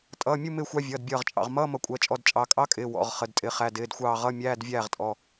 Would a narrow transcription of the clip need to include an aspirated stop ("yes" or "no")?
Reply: no